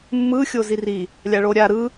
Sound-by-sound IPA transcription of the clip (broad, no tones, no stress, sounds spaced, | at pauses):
mː ɯ xʲ o z i r i | lʲ a ɭ o ɾʲ a ɾ ɯ